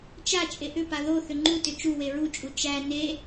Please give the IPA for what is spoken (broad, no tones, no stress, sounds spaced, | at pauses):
t͡ʃ a t͡ʃʼ e ʔ ʏ p a ð o θ ʏ ŋ͡ǃ u t ʏ t͡ʃ u w e ɹ u t͡ʃʼ u t͡ʃ æ n e